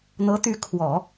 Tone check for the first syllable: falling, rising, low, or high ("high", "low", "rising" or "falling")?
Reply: rising